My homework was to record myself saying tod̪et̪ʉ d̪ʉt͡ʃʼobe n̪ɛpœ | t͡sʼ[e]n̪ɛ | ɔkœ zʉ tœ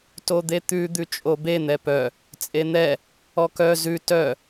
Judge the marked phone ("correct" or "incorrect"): correct